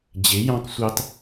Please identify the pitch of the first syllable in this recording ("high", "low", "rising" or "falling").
rising